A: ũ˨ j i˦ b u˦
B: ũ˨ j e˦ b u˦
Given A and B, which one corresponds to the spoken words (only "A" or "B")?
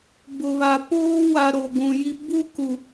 A